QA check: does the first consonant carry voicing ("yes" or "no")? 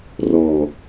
yes